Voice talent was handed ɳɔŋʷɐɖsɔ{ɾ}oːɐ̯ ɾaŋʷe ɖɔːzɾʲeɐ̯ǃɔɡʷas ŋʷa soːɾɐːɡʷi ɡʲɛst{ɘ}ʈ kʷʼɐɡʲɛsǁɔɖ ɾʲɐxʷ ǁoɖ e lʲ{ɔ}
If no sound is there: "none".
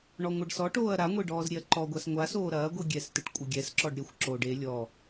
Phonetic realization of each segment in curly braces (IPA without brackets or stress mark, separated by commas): ʈ, ɘ, ɔ